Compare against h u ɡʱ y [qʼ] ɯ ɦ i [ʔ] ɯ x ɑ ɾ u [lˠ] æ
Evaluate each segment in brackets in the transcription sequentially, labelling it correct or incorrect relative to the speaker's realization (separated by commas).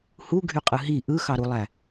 correct, correct, correct